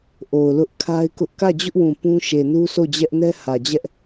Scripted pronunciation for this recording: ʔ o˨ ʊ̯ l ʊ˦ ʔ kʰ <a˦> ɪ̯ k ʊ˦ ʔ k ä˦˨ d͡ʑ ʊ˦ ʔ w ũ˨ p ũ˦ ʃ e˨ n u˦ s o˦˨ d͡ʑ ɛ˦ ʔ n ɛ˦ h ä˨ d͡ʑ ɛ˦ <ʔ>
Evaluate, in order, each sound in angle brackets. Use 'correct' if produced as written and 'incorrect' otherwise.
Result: correct, correct

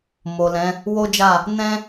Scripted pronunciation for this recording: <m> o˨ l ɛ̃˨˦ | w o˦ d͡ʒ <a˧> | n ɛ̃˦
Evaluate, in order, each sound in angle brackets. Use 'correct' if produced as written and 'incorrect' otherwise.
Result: correct, incorrect: a˦˨

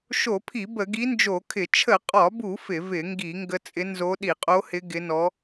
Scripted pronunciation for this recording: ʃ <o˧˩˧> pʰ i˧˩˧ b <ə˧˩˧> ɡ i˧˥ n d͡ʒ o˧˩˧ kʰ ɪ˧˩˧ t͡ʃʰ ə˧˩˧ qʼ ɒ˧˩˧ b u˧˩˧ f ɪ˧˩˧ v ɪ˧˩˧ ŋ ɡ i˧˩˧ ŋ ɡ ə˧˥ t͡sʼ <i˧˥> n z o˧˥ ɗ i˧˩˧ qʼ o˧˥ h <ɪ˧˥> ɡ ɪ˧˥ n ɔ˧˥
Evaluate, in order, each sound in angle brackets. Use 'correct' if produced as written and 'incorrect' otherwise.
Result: correct, correct, incorrect: ɪ˧˥, correct

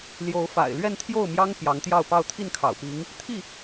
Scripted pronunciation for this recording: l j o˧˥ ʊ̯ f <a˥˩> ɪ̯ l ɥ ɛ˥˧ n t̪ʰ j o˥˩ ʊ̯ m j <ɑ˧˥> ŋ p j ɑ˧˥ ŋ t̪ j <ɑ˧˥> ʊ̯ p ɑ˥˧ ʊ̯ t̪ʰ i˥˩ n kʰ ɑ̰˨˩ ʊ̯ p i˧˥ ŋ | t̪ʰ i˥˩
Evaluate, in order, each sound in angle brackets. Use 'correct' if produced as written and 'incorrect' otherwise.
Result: incorrect: a̰˨˩, incorrect: ɑ˥, incorrect: ɑ˥˧

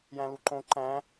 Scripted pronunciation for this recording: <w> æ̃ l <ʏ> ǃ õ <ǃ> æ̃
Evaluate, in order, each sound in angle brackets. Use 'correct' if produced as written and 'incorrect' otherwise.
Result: incorrect: j, incorrect: u, correct

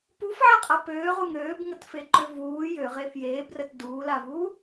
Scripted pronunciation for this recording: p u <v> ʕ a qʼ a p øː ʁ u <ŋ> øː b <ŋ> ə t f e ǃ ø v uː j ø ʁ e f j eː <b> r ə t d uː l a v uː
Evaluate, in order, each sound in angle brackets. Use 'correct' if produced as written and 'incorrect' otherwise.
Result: incorrect: f, correct, correct, correct

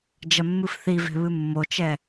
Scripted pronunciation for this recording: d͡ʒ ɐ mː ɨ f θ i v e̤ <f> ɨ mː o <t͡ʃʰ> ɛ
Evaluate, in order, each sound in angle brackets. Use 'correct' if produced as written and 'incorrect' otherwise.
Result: incorrect: β, incorrect: t͡ʃ

